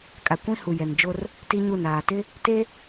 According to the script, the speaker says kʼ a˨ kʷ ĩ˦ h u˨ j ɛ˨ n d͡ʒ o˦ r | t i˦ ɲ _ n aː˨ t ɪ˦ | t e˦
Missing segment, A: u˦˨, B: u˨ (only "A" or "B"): A